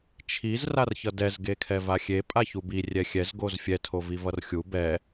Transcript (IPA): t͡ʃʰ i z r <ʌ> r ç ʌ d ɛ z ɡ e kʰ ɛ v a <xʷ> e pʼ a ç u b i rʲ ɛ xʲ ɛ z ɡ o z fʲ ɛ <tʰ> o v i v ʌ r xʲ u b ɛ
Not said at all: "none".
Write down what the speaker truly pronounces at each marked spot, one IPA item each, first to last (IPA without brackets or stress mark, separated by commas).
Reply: a, xʲ, tʰ